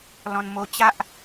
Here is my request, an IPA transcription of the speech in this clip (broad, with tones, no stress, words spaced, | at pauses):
lɔ̃˧nmo˧t͡ɕa˦ʔ